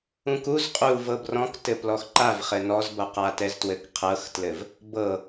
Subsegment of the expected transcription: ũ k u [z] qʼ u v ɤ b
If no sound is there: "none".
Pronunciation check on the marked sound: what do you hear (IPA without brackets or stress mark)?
z